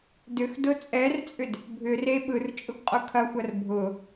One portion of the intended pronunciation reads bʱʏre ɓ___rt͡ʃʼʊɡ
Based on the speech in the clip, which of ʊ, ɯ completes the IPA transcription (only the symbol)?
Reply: ɯ